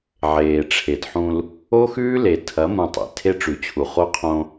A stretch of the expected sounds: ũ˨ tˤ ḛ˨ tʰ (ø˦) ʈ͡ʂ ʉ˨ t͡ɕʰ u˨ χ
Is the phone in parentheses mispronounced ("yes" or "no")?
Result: yes